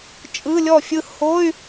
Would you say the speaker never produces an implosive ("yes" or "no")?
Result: yes